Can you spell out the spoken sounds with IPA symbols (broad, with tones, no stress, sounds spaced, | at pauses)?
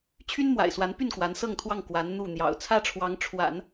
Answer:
t͡ɕʰ y˥ n m w a̰˨˩ ɪ̯ s w a˧˥ n p y˥˩ n k w a˧˥ n s ɤ˥˧ ŋ t̪ʰ w ɑ˥˩ ŋ k w a˧˥ n n̪ u˥˩ n̪ j ɑ̰˨˩ ʊ̯ t͡sʰ ä˥ ʈ͡ʂʰ w ɑ˧˥ ŋ ʈ͡ʂʰ w a̰˨˩˦ n